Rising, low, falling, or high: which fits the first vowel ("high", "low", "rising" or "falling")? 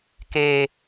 low